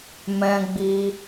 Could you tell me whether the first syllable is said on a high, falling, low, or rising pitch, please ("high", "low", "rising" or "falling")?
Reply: high